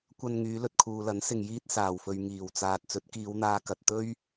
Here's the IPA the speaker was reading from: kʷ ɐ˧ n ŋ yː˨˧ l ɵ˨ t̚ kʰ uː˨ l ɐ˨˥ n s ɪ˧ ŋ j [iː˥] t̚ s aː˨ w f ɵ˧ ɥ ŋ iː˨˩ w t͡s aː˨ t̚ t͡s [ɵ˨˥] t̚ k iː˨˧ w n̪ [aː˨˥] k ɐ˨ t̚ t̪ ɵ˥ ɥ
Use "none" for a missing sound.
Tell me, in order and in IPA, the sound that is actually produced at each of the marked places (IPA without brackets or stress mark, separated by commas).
iː˥, ɵ˨˥, aː˧